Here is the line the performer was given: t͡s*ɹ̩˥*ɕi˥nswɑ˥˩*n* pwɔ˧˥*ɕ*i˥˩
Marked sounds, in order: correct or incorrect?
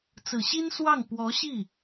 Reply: incorrect: ɹ̩˨˩, incorrect: ŋ, correct

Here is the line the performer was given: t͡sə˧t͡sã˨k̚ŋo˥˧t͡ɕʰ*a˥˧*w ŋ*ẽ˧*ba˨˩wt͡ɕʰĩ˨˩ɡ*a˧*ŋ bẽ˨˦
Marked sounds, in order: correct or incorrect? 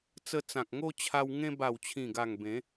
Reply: incorrect: a˧, correct, incorrect: a˨˩

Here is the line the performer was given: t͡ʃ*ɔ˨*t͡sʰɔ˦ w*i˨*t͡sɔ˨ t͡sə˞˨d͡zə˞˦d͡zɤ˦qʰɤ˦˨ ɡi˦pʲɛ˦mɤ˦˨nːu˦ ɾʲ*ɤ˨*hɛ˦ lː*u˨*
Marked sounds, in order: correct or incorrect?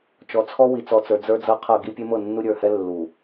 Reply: correct, correct, incorrect: ə˞˨, correct

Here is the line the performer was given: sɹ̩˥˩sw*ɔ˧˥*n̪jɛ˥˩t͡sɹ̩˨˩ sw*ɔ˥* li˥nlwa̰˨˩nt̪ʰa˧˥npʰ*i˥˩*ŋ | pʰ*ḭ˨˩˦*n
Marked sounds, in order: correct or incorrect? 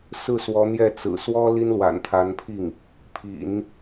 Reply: correct, correct, correct, correct

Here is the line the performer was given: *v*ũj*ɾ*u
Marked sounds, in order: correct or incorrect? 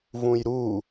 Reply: correct, correct

